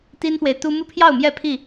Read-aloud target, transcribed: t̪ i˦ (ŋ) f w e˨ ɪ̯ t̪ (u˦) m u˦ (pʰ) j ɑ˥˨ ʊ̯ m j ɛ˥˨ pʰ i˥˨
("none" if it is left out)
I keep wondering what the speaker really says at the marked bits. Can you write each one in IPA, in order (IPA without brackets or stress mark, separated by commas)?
n, u˦, pʰ